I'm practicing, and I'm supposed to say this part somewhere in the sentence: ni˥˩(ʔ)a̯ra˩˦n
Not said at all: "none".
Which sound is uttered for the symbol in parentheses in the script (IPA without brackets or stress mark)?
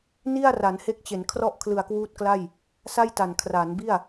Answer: none